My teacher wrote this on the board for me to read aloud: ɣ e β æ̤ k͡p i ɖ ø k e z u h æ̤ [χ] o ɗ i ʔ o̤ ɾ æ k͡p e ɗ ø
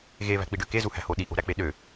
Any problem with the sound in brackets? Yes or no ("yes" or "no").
yes